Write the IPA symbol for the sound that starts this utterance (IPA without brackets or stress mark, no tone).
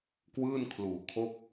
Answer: k